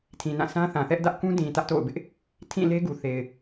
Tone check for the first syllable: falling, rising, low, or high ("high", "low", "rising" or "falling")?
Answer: low